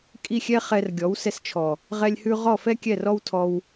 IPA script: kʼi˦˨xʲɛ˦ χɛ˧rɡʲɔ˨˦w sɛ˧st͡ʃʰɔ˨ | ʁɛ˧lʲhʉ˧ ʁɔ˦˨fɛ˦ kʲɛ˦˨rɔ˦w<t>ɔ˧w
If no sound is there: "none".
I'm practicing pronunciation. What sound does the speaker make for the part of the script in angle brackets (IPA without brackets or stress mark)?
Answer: tʰ